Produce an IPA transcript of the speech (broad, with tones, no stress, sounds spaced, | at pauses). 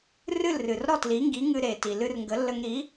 r ɨ˥˩ l r ɨ˩ r ɾ ɔ˥˩ t l i˩˥ ŋ ɡ i˩˥ ŋ ɨ˧ ɾ e˩ t i˩ l ɨ˧ r ŋ ɡ ə˩˥ lː ə˧ ŋ ɾ i˩˥